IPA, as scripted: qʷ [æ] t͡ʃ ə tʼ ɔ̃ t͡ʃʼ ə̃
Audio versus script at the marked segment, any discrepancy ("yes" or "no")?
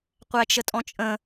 no